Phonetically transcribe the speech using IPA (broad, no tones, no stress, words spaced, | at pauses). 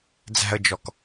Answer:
d͡zæ̤ə̯d͡ʒɔk